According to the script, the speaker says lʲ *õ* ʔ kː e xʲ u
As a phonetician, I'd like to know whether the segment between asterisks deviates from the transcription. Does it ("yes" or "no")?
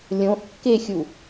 no